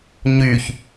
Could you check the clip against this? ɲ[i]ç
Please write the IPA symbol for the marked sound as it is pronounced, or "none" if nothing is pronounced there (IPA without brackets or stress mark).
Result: y